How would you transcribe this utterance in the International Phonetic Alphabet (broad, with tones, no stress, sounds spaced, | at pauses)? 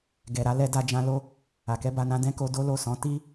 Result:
ɡ ɛ˨ ɾ a˨˦ l ɛ˧ d a˧ d͡ʒ ã˧ l o˧ | a˨ k ɛ˧ b a˧ n ã˧ d ɛ̃˦ k o˧ d o˦ l o˦˨ s ɔ̃˨˦ t i˦